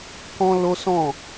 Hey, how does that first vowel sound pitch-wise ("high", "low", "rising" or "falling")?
high